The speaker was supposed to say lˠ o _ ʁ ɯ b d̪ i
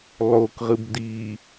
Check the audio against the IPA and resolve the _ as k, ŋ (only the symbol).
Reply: k